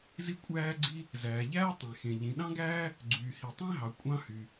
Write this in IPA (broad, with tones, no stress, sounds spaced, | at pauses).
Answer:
z i˥ kʷʼ æː˥ ɡ͡ǀ i˥ | z æː˩ ʎ æː˥ tˤ ẽ˩ x ẽ˩ ʎ ĩ˩ ɗ ɑ̃˥ ɡ æː˥ | ɡ͡ǀ yː˩ h i˩ tˤ ẽ˥ ɦ ɑ˩ kʷʼ ɑ̃˥ h y˩